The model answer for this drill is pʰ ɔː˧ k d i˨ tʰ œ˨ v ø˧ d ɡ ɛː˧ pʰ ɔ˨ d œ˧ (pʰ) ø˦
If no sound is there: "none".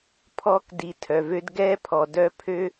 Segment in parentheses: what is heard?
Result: pʰ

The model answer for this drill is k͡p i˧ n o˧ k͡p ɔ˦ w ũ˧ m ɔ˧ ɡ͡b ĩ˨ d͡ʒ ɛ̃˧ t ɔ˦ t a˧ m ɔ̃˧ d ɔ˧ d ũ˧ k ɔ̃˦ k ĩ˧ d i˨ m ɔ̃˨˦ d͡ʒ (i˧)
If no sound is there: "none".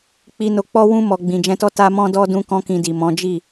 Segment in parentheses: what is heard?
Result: i˦˨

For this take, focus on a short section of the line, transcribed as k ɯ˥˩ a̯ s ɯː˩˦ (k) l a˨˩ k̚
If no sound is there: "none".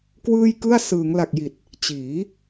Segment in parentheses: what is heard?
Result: ŋ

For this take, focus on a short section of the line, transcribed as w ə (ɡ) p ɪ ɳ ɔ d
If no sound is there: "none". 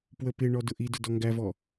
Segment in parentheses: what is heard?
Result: none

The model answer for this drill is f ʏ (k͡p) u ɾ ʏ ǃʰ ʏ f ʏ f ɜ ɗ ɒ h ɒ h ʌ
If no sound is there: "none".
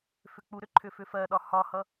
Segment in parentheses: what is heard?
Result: k͡p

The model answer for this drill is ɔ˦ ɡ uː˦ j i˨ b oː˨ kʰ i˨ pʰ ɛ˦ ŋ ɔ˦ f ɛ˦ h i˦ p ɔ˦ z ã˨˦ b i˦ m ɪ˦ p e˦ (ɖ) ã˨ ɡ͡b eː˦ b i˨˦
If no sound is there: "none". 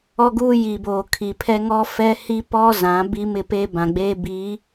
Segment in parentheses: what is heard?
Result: b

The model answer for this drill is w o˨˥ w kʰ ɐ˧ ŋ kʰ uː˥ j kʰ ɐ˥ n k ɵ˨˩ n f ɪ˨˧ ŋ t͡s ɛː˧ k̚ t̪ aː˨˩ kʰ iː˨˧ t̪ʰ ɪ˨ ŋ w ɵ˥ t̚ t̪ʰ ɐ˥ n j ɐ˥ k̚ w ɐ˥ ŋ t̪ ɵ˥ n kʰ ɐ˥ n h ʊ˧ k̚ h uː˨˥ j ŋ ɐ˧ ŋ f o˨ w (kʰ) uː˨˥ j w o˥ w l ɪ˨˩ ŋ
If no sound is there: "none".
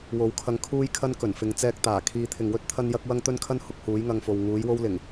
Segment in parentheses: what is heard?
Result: ŋ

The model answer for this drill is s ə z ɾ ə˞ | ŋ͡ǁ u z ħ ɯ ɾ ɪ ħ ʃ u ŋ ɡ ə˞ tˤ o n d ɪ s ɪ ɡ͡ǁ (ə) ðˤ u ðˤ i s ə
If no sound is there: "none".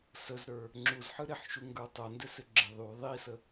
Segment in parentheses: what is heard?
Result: ɪ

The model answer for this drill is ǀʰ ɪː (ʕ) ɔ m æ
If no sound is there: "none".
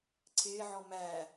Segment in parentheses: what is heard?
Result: ʕ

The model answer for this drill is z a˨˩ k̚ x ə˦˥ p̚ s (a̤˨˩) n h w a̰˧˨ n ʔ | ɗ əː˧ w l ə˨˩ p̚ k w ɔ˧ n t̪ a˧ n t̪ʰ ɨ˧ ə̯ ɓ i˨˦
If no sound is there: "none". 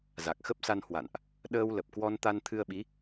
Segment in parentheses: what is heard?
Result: a˧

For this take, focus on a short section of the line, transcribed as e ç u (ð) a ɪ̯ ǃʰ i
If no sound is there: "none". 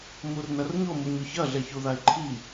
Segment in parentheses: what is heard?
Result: ð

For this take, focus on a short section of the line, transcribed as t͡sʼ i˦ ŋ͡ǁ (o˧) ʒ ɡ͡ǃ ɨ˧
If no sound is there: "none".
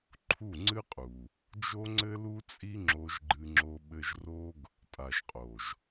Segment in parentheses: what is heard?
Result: o˧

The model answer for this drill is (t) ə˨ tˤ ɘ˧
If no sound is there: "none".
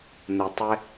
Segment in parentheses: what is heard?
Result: n̪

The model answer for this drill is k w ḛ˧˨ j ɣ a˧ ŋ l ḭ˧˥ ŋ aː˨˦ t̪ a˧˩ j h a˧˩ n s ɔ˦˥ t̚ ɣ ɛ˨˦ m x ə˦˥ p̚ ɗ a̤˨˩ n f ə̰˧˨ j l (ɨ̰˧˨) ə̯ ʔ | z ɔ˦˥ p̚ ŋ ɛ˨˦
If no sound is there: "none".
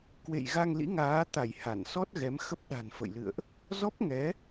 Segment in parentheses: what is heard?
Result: ɨ̰˧˨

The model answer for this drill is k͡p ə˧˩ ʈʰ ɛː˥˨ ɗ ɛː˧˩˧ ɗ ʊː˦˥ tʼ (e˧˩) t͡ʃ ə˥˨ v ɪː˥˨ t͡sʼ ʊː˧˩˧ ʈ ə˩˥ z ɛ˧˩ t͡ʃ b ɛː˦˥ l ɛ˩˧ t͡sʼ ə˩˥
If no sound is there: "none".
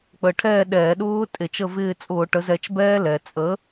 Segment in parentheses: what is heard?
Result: e˧˩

